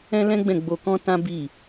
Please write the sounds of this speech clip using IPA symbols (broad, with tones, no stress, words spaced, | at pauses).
ɛ̃˦lɛ̃˦ɡ͡bɛ̃˦˨ ɡ͡bo˧kɔ̃˦ tã˦bi˦˨